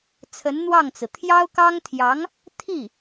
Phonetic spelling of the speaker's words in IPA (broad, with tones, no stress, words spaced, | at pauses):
t͡sʰə˧˥nn̪wɑ˥˩ŋt͡sɹ̩˩ t̪ʰjɑ˥ʊ̯kɑ˥ŋt̪ʰjɑ˧˥ŋ | t̪ʰi˥˩